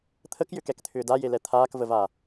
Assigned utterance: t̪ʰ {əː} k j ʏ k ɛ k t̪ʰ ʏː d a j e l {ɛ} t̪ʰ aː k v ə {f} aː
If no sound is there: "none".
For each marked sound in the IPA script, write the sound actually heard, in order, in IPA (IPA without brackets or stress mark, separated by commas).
ə, ɛ, v